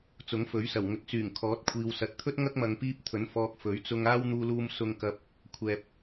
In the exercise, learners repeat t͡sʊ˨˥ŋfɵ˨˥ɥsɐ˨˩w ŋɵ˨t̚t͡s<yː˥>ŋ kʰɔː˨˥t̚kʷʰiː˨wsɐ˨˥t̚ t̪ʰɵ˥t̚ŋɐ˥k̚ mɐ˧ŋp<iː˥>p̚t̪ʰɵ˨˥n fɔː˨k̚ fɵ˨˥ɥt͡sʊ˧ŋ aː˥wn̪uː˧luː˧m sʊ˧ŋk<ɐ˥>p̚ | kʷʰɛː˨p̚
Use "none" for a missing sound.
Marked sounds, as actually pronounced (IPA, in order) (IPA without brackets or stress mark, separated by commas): yː˨˩, iː˥, ɐ˧